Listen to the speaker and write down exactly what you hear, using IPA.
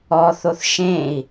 ɔθoθ ʃẽi̯

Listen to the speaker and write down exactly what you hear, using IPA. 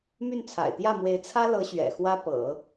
my˥˩nt͡sʰa̰˨˩ɪ̯t̪jä˥˩mwe˧˥ɪ̯ t͡sʰä˥lɤ˧˥ ɕɥɛ̰˨˩xwä˥pɤ̰˨˩˦

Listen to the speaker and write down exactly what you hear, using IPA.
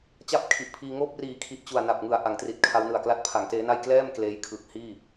t͡ɕa˥˩p̚kʰi˨˩ʔpʰiː˧ ŋoː˥˩p̚ riː˨˩kʰi˨˩ʔ t͡ɕu˨˩a̯ na˨˩p̚ ŋɯ˨˩a̯ʔa˩˦ŋtri˨˩t̚ kʰa˦˥wnɯ˨˩a̯kla˥˩t̚ pʰa˩˦ŋteː˦˥na˥˩j klɛː˥˩m kleː˦˥jkʰɯ˨˩k̚hiː˥˩

